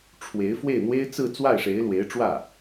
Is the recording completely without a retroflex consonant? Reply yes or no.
no